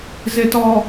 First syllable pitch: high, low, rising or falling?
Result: low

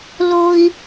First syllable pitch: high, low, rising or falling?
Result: high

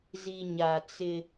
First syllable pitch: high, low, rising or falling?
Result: low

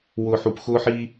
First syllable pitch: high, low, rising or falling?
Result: low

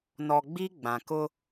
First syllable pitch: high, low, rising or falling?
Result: low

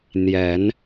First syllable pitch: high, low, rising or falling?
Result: rising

